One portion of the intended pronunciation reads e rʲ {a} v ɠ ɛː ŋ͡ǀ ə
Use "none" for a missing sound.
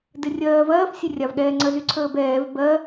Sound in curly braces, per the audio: a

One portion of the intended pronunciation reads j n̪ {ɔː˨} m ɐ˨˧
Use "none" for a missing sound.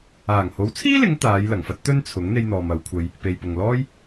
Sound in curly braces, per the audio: ɔː˨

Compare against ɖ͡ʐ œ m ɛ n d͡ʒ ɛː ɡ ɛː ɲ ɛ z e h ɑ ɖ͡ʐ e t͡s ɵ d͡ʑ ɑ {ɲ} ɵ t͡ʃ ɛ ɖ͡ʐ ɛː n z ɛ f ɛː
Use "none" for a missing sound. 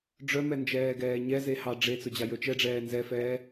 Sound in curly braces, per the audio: j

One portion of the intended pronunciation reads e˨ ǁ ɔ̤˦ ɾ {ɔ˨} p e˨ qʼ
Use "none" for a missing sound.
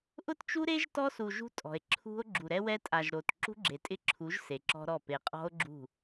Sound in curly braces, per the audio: ɔ˦˨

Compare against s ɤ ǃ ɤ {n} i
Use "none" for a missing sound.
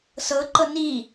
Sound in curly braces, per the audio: n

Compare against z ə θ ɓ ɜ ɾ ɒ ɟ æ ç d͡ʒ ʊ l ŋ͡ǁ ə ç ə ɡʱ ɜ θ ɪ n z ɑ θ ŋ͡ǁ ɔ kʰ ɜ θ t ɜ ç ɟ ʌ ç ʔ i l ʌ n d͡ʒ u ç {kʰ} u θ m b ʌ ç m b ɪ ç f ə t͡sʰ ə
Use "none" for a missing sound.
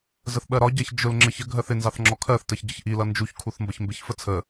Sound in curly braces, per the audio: kʰ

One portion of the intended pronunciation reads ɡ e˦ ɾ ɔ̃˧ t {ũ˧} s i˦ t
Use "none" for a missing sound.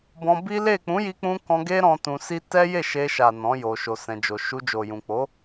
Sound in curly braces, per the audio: ũ˧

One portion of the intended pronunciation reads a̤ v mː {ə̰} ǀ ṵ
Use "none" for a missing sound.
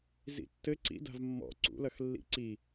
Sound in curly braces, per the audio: ɔ̰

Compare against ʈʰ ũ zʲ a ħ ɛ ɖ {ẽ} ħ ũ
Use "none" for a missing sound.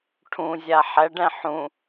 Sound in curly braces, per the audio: ɛ̃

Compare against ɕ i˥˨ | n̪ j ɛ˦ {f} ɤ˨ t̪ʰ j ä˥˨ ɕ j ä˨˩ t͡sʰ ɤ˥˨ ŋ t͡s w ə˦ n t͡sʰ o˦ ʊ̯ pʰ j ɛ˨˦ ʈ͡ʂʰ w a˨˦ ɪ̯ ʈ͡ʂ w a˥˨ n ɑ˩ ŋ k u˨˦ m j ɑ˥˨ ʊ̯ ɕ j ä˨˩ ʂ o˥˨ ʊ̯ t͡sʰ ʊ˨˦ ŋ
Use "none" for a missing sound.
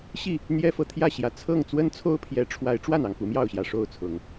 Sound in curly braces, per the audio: f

